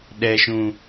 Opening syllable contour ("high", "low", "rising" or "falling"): low